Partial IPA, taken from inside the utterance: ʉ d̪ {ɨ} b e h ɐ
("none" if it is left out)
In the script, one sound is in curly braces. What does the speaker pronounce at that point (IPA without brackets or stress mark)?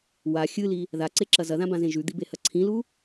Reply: i